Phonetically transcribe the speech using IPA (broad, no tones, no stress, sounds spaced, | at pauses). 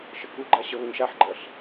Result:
ʃ ə k u ɡ͡ǃ a ɕ ə β ə ɲ ʃ a ħ ɡ͡ǃ ɜ ɬ